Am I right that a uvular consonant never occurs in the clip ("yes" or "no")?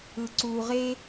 no